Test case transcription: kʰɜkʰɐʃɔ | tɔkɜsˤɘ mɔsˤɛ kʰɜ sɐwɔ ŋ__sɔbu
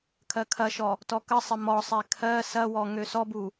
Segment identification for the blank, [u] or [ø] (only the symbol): ø